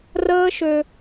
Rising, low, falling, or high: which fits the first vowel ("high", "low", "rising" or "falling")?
high